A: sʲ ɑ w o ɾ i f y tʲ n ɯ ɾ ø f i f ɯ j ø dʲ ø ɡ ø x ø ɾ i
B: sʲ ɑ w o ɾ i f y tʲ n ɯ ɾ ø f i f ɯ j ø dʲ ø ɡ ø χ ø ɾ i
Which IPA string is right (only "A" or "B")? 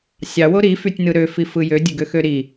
A